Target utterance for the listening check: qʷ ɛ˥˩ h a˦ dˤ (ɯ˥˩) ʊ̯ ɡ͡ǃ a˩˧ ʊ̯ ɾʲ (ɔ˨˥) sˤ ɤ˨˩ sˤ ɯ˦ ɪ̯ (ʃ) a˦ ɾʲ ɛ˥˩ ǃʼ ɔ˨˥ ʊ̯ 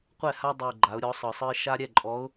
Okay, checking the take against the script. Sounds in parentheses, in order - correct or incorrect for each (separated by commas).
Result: incorrect, correct, correct